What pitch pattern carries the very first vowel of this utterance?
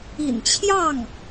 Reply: low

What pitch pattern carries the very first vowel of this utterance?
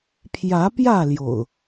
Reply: rising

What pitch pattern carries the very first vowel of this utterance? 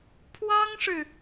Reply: high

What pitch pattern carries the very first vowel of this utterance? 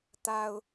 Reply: low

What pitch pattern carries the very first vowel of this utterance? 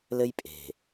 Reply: high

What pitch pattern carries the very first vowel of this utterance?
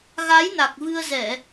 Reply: rising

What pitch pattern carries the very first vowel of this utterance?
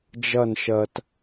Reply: falling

